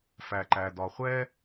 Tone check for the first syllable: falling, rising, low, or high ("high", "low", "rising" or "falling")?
low